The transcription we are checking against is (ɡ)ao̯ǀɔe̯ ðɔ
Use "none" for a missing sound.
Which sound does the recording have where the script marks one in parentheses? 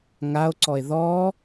ŋ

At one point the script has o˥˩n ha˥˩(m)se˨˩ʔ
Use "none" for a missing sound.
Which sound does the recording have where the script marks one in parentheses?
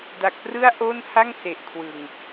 ŋ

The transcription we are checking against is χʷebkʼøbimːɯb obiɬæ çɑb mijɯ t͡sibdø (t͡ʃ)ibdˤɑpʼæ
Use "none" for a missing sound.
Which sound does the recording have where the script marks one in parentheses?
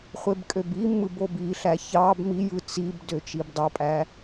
t͡ʃ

